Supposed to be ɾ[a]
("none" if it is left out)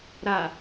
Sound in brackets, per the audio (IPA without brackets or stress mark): a